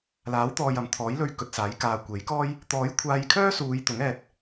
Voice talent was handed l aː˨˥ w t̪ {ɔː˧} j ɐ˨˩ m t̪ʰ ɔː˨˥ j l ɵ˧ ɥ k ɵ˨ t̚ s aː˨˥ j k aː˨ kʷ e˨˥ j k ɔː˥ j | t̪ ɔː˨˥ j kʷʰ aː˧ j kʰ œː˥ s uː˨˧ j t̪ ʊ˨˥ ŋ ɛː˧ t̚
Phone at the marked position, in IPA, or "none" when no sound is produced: ɔː˨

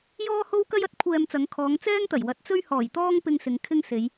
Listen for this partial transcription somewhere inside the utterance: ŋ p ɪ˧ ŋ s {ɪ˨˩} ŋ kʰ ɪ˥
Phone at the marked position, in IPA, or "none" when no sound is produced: ɪ˨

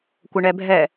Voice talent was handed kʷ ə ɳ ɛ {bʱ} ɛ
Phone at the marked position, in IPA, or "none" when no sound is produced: bʱ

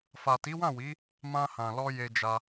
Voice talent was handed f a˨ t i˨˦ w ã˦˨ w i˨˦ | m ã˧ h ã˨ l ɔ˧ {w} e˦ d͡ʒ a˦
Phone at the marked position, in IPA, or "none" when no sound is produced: j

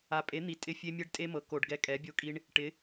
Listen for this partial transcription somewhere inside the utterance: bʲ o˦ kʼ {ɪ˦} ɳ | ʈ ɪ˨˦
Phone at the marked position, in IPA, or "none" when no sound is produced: i˦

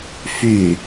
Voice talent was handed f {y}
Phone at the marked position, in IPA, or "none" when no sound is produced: y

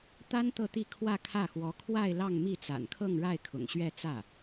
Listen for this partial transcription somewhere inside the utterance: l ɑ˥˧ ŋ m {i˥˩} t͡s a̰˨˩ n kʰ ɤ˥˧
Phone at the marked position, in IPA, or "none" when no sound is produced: i˥˩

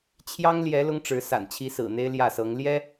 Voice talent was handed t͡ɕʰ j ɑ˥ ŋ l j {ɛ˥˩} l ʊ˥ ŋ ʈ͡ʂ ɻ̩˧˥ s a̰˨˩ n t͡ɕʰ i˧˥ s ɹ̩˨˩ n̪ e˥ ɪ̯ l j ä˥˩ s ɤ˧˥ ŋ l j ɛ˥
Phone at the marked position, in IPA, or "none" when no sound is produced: ɛ˧˥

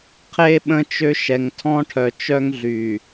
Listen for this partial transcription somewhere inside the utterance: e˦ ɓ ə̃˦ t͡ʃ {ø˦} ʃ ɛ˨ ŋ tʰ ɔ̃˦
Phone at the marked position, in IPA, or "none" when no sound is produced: ø˦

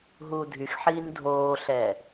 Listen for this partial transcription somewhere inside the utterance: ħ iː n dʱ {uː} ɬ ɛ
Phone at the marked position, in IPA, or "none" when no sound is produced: oː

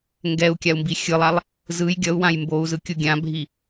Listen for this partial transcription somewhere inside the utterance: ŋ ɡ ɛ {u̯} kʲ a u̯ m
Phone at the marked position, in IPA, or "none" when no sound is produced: u̯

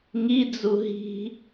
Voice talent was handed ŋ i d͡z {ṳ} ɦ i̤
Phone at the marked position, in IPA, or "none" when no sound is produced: u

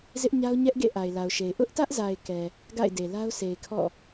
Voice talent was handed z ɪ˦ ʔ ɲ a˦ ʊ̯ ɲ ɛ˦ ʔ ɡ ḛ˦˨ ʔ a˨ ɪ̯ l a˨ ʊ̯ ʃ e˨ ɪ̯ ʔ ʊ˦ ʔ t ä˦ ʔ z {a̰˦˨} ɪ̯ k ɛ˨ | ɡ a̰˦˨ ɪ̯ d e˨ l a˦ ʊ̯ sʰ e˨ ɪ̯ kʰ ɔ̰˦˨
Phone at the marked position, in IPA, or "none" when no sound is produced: a˨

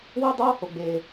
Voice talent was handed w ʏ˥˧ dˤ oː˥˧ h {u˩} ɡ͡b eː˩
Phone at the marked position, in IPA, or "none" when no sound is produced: o˩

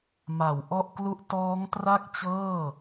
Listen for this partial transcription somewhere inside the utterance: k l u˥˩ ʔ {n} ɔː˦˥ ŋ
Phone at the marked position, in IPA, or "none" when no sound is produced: t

